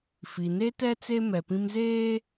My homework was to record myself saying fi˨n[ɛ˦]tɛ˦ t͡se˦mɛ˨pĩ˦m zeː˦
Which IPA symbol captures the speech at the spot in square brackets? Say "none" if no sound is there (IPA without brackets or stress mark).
e˦